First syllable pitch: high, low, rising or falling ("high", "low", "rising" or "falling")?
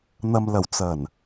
low